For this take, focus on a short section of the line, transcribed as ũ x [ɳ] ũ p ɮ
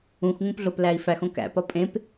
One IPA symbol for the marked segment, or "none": ŋ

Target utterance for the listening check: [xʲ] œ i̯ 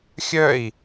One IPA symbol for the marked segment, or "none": xʲ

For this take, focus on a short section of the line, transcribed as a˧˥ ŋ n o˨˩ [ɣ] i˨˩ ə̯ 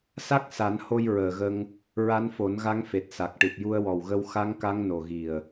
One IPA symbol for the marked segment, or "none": ɣ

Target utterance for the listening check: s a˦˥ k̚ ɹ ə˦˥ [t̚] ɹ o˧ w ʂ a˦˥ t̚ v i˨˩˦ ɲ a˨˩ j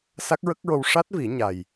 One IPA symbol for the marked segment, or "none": k̚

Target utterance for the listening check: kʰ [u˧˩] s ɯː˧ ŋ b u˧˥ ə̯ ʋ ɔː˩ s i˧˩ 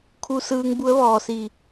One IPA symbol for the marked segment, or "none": u˧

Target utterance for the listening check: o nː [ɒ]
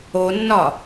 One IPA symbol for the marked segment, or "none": ɒ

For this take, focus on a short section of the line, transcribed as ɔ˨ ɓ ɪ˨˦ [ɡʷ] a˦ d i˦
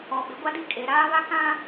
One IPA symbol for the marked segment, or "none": ɡʷ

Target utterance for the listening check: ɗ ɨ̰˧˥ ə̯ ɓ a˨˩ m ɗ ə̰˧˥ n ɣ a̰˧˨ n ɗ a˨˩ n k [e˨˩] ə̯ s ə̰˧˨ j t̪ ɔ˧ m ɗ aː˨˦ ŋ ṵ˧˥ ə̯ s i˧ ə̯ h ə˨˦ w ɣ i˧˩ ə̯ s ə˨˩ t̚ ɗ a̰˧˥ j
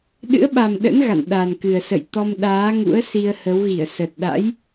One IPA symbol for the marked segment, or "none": ɨ˨˩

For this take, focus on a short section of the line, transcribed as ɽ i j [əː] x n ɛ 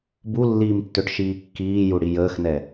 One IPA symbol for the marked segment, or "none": əː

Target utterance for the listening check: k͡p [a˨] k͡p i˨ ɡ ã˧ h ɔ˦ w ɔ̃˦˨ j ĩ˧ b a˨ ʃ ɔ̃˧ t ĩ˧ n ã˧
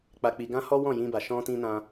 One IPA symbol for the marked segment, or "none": a˨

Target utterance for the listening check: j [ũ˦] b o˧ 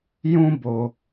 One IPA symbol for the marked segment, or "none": ũ˦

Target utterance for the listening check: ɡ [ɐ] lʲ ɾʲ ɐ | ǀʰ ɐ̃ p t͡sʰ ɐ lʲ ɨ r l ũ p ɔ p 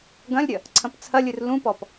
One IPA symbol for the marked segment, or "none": ɐ̃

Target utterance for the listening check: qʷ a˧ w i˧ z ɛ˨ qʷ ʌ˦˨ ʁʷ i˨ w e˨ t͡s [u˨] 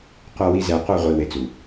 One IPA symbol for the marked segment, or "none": u˨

